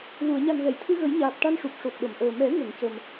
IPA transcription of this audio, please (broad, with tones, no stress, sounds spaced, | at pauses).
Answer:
l u˨˩˨ ə̯ ɲ a˨˩ n ɣ ɛ˨˩˨ j t̪ʰ ɨ˧ ɣ ə˨˩˦ j ɲ aː˨˩ p̚ ʈ a˧ n ʂ u˨˩ p̚ ʂ o˨˩ t̚ ɗ ə˨˩˨ m ʔ əː˨˩ m ɛ˨˩˦ ŋ ə˨˩˨ ŋ c ə˨˩ m